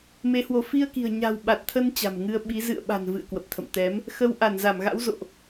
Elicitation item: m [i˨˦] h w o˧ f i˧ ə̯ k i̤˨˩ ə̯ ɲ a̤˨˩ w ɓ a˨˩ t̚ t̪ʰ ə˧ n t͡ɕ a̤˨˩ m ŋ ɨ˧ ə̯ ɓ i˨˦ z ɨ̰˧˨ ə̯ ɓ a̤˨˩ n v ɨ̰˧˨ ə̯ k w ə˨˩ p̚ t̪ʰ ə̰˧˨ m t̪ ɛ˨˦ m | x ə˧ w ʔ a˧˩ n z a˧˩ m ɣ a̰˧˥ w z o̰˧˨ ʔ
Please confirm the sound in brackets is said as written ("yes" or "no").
no